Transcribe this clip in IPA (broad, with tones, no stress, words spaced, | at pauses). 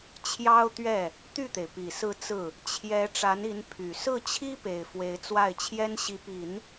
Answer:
t͡ɕʰjɑ˥ʊ̯t̪ɥɛ˥˩ | t̪y˥˩t̪e˩ɪ̯pi˨˩ sɹ̩˥˧t͡sɹ̩˥˩ | t͡ɕʰjɛ˧˥ ʈ͡ʂa˧˥ni˧˥n pʰy˨˩ sɹ̩˥˩t͡ɕʰi˥pe˨˩ɪ̯ fwe˧˥ɪ̯t͡swa˥˩ɪ̯t͡ɕʰjɛ˥n ɕi˧˥pi˨˩˦n